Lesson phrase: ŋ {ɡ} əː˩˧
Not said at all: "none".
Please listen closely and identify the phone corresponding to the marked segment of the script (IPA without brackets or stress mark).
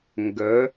ɡ